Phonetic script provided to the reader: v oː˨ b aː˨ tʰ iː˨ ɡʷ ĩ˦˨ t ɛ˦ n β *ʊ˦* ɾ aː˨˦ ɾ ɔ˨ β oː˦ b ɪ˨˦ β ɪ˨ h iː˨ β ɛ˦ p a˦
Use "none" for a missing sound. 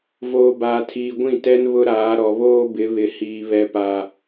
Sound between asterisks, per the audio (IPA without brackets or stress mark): ʊ˦